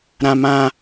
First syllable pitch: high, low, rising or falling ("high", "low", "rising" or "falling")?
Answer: high